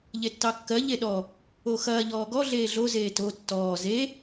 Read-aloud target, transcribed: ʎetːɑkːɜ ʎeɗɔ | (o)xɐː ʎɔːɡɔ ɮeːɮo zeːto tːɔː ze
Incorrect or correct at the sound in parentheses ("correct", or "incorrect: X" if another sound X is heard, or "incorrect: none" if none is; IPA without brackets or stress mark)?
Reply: correct